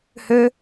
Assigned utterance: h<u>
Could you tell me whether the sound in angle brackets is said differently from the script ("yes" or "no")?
yes